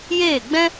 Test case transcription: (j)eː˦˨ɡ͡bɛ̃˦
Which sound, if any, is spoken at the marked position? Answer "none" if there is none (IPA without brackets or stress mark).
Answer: j